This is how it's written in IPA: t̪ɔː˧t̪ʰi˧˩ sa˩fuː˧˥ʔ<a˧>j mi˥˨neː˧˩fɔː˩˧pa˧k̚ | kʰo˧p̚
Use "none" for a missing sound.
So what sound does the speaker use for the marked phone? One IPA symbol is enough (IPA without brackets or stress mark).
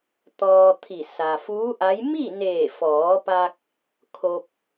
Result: a˧˥